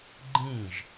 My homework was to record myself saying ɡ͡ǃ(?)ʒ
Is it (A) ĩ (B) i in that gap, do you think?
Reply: A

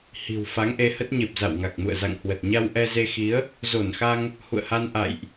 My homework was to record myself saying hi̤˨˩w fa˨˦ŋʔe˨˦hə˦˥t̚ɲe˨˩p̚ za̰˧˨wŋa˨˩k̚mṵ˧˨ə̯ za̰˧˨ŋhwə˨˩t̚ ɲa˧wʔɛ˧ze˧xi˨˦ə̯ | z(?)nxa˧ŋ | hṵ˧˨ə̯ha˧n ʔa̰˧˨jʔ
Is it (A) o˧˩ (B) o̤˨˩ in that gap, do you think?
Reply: A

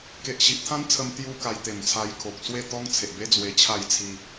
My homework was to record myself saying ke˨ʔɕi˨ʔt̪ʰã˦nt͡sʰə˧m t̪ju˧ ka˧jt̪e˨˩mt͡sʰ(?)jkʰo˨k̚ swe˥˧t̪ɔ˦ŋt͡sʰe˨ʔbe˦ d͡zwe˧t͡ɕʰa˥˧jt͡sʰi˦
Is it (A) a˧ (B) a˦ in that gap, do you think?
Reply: A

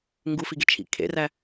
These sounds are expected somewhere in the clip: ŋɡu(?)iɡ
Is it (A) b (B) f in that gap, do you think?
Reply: B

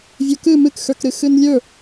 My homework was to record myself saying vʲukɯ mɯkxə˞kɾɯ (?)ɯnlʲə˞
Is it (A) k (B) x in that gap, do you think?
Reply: B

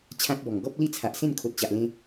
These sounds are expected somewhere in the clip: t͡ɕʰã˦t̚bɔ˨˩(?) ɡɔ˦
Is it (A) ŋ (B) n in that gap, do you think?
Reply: A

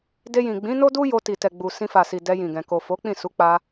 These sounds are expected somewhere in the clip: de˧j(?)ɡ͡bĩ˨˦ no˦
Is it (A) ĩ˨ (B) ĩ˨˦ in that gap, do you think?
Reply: A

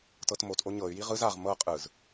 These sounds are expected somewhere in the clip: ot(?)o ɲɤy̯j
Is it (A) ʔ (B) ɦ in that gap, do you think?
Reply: A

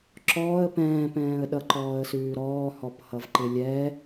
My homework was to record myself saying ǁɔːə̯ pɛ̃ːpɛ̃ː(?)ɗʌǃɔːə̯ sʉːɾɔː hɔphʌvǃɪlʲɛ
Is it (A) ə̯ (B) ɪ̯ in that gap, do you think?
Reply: A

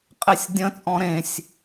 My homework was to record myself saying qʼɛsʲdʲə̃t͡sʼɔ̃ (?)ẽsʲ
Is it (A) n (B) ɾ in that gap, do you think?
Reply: B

